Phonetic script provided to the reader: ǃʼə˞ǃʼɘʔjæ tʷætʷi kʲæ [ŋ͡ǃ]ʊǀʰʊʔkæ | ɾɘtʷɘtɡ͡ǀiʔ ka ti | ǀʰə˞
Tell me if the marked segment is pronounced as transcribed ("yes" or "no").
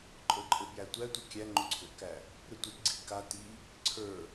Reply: yes